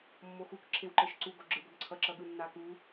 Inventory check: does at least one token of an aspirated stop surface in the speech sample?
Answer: yes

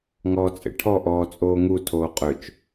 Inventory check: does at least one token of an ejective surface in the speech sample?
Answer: yes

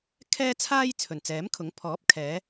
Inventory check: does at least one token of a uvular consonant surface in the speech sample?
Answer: no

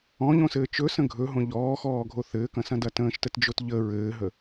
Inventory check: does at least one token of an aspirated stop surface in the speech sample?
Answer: no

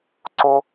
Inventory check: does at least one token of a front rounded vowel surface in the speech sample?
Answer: no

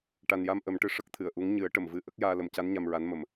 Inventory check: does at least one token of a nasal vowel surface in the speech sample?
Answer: no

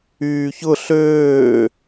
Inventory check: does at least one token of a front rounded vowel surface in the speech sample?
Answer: yes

